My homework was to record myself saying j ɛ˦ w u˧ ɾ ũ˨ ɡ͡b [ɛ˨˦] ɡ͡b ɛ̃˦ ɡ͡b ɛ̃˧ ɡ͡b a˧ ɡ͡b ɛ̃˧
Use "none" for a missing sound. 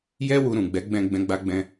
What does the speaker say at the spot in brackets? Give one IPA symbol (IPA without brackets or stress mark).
ɛ˨˦